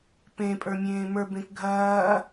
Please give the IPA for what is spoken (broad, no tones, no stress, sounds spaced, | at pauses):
p ẽ pʼ ə˞ mʲ ẽː m ə˞ b ẽ k ɡʱ ɐː